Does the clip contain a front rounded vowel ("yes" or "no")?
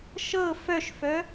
yes